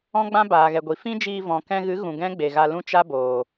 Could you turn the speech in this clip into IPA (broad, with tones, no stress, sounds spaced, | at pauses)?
ɔ̃˦ ɡ͡b ã˦ b aː˨ ɣ ɛ˨ ɡʷ i˨ f ĩ˦ d͡ʒ iː˧ v ɔ̃˨ k ɛ̃˧ ɣ ɨ˨˦ ɣ ũ˨ ɡ ɛ̃˦ ɡ͡b e˨ ɣ a˧ l ũ˦ t͡ʃ a˦ b oː˨